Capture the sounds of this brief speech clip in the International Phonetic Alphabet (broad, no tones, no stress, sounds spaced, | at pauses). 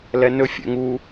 l ɛ n ɵ fʲ ɛ̰ ŋ u